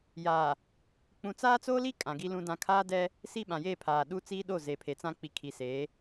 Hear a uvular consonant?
no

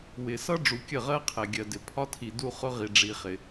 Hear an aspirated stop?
yes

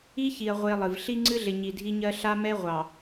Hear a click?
yes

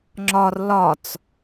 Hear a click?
yes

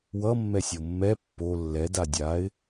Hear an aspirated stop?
no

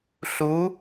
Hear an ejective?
no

